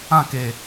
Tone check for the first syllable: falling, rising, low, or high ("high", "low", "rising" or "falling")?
falling